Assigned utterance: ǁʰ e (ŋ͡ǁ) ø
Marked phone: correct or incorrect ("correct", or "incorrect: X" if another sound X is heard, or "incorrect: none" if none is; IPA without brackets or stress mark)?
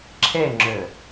correct